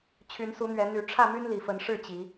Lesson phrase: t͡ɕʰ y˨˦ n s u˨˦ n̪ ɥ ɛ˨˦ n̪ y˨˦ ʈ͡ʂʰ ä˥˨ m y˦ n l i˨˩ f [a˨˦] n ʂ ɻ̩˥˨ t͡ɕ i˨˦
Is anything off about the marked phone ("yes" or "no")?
yes